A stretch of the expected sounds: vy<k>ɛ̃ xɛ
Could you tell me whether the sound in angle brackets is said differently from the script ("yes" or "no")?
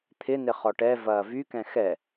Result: no